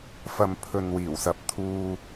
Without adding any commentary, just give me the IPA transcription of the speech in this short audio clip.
fɐ˨m pʰɵ˨nwiː˨˩wsɐ˨p̚t̪ʰuː˧

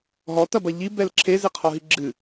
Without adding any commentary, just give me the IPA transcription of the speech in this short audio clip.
ɦɔtɐbɐ ʎibɛl ǁʰezeqʰɔɦi ɡ͡ǁɨ

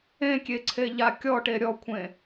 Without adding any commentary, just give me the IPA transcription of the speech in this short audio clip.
ẽkʲeǀʰeʎa kʲɔʈe ɾʲɔkʷʰẽ

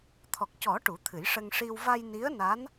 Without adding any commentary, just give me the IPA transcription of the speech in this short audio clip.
t̪ʰɔ˨˩k̚cɔ˨˩˦ ʈu˨˩˦t̪ʰɨ˨˩˦jʂə˧ŋ ʂi˧w va˧jni˧˥ə̯na˧˥n

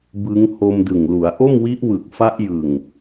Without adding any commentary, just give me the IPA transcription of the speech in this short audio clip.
bɯ˦˥ŋ ho˧m dɯ˨˩ŋlu˩˦a̯ ʔo˥˩m wi˦˥ʔ wɯ˨˩k̚ fa˦˥ʔjɯ˨˩ŋ

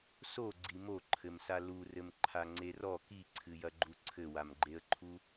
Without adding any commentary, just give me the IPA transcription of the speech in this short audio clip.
so ɡ͡ǀimoǃʰɘmsa lurɘm ǃʰaŋ͡ǀerɔ kiǀʰɨjɐɡ͡ǃu ǀʰɘwamɡ͡ǃeə̯ǃʰu

